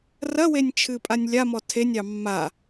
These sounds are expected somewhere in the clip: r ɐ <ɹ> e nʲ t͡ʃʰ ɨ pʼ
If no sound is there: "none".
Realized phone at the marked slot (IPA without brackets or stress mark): w